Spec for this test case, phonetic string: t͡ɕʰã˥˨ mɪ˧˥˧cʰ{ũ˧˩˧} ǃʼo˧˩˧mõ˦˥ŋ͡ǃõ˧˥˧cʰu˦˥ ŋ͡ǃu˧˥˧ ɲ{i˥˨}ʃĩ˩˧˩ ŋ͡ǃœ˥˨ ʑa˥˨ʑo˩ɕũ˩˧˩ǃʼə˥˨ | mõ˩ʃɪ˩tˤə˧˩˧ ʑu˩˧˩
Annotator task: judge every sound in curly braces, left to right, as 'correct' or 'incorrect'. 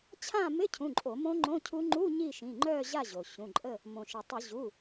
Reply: incorrect: ũ˩˧˩, correct

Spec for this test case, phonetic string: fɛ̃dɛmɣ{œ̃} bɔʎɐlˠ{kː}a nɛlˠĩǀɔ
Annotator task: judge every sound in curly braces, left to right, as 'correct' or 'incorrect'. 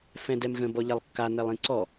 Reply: incorrect: ə̃, correct

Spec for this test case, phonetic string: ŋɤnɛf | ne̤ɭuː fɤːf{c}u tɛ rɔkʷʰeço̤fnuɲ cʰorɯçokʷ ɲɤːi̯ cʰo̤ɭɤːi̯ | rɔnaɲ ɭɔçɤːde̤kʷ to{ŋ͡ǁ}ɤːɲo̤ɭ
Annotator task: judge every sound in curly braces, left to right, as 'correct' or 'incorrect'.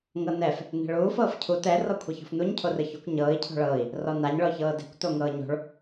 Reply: incorrect: cʰ, incorrect: ŋ

